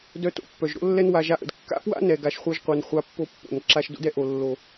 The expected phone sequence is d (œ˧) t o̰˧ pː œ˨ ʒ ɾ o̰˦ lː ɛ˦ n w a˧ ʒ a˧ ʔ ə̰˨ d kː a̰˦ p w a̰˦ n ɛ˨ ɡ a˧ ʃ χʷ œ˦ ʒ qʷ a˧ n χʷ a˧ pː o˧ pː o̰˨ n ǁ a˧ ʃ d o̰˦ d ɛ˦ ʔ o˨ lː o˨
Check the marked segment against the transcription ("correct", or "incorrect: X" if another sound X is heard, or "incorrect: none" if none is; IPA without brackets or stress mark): correct